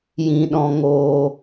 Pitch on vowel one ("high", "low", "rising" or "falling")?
low